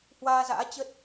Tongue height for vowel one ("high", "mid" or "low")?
low